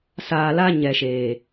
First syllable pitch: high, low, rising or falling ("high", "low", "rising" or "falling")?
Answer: low